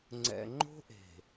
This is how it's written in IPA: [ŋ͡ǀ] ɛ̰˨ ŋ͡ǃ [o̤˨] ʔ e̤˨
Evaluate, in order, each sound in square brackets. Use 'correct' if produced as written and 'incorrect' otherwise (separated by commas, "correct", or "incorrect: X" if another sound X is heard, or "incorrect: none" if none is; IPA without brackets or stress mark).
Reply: correct, incorrect: o̤˦